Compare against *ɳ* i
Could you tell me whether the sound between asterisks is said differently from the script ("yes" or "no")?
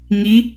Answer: yes